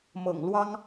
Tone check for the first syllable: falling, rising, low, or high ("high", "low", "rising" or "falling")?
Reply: low